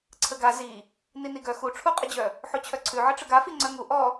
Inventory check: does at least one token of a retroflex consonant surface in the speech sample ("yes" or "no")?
yes